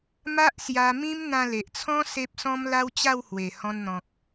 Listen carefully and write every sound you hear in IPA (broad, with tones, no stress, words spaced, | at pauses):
ma˦ʔsja˧ mĩ˦mn̪ã˧le˨ʔt͡sʰɔ̃˦ se˦p̚sɔ̃˦mla˦w t͡ɕa˥˧whwe˨˩ hɔ̃˧nn̪ɔ̃˨k̚